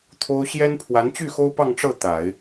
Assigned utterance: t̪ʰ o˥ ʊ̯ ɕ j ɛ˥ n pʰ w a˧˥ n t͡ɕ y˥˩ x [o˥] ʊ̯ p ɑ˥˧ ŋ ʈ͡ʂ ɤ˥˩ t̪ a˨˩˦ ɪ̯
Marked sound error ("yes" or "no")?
no